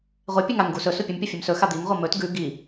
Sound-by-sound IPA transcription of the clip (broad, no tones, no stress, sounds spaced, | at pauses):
ʁʷ e pʲ ʉ ŋ a ŋ ɡ u s ɵ s u pʲ ʉ m pʲ u fʲ ʉ m s ɵ x a d̪ i ŋ ʁʷ ɐ m ɵ t ɡ ʉ ɡ i